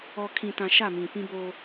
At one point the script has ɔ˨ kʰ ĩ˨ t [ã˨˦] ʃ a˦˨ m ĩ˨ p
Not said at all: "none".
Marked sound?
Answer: ã˨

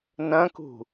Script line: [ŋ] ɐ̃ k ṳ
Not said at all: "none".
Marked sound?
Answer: n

